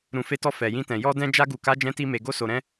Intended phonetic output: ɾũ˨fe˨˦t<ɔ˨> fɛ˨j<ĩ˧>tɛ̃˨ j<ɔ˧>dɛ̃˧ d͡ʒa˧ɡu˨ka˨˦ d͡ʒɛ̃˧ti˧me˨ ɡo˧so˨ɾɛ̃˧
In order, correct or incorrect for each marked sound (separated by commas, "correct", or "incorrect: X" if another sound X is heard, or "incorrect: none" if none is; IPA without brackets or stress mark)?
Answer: incorrect: ɔ˧, correct, correct